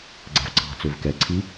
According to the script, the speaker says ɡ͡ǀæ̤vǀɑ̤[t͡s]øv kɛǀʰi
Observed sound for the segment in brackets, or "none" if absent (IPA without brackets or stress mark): t͡s